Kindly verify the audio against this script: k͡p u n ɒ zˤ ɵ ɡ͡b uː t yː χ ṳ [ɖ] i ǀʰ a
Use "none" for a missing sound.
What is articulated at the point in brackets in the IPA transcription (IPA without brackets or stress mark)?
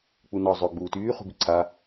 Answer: b